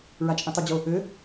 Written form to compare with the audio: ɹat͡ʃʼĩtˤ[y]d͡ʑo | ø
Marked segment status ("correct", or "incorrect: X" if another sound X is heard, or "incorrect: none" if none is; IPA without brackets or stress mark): correct